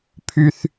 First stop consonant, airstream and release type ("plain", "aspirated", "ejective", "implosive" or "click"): aspirated